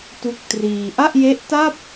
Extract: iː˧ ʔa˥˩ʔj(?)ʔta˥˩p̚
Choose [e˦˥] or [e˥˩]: e˦˥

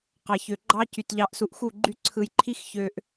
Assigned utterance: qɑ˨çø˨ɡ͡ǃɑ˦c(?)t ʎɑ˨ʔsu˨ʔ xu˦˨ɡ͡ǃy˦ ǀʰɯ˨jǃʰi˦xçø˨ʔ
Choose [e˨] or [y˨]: y˨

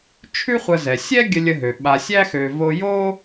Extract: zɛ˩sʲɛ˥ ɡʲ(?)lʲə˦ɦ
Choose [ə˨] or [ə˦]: ə˦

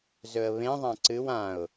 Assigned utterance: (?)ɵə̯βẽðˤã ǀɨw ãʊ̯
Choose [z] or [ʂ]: z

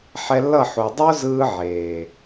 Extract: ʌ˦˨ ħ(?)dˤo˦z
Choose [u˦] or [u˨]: u˨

